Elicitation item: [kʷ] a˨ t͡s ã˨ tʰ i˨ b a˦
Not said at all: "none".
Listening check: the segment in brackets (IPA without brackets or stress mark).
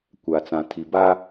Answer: kʷ